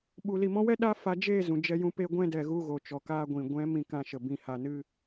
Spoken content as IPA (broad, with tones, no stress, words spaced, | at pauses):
ɓu˨li˨mɔ̃˧wɛ˦ ɗa˦fa˧d͡ʒeː˦˨ zũ˨d͡ʒɛ˧jũ˧ pe˧ɡʷɛ̃˧dɛ˨ ɣu˧ɣo˨ t͡ʃɔ˨kaː˧ ɡʷĩ˨ ɡʷɛ̃˨˦ mĩ˧kã˧ʃə˨ bĩ˨ha˨nɨ˧